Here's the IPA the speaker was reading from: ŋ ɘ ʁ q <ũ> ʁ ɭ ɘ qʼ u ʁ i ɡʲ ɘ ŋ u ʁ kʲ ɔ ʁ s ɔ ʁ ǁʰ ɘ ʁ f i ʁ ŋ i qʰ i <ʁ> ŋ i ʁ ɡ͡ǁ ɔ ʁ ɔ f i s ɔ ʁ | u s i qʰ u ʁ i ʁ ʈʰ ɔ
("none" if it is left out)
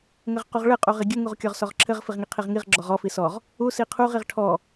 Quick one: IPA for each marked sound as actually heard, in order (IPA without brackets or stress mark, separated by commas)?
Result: u, ʁ